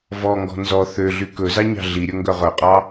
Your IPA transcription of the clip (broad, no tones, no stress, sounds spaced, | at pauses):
v ɔ ŋ ɡ ɔ̤ n z ɔ θ ø ɮ y k ɵ z ɑ ɲ ɑ̤ ɮ i ɾʲ ɵ ŋ ɡ œ ʁ œ qʼ ɑ